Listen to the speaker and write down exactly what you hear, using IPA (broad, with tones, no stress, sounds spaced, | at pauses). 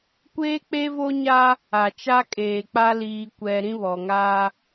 kʷ eː˦ k͡p e˦ v o˦ ɲ a˦ | a˨ t͡ʃ a˦ kʼ eː˨ k͡p a˦ l iː˦ kʷ ɛ˦ ɾ ĩ˦ β ɔ˨ ŋ a˦